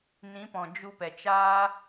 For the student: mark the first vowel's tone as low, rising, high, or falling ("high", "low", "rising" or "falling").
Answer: rising